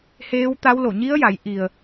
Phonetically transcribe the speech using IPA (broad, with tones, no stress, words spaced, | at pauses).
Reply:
heː˧˥wt̪a˧˥w lo˧˩ɲi˧˥ə̯ja˩˧j ʔi˩ə̯